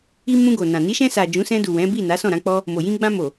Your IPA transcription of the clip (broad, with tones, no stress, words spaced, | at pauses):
i˧ mũ˧ɡo˨nã˨ ni˨˦ʃɛ̃˧sa˨ d͡ʒũ˨˦sɛ̃˧du˨ wɛ̃˨˦bi˦˨na˨˦ sɔ̃˦˨ɾã˨˦k͡pɔ˦ | mo˨jĩ˧ ɡ͡bã˧mo˨